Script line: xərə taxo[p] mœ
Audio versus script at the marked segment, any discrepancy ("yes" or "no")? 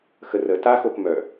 no